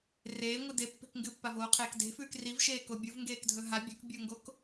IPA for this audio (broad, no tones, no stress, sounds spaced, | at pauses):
r eː ŋʷ ɨ d e pː e̤ k ŋ ɡ ɨ pː a v oː qʰ eː k d e̤ f ʉː k r i v ʃ eː k o bʲ u v ŋ ɡ eː k dʱ ɵ ɦ a bʲ ɵ k bʲ o ŋ ɡ o k